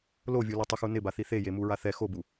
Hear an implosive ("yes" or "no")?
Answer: no